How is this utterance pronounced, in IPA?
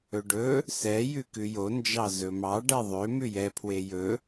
ɵ ɖ ɵ | s ɛ j ʉ k ʉ j o n d͡ʒ ɑ z ɵ m ɑ ɖ ɛ ðˤ ø m ʉ j ɛ pʰ w e j ɵ

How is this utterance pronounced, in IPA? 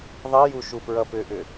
ðˤ i j u ʃ u p ɹ ʌ p ʏ ʔ ʏ

